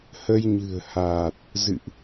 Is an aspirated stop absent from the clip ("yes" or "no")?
yes